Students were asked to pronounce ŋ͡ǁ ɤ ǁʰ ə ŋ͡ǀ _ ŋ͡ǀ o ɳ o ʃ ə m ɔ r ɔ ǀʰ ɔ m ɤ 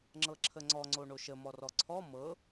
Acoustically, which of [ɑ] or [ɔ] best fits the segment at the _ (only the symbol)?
ɔ